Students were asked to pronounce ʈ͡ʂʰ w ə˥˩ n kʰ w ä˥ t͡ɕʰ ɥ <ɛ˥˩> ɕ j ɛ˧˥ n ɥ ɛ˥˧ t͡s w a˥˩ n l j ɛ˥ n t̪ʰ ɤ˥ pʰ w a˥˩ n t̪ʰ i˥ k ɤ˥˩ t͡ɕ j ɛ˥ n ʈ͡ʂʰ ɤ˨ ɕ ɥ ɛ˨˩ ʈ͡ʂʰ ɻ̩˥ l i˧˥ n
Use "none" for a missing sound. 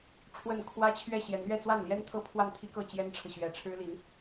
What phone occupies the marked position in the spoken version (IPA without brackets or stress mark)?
ɛ˥˩